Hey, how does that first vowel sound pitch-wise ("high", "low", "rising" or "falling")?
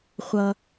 low